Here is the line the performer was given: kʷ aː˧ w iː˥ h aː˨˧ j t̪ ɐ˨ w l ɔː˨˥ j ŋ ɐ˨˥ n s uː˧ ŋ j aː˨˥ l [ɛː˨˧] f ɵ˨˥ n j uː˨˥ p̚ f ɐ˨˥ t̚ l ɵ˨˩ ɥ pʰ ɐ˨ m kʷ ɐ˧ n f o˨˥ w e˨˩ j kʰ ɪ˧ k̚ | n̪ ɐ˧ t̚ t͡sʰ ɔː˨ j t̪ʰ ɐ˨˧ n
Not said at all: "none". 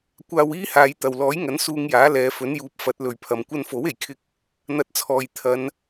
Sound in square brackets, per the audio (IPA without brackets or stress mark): ɛː˨˧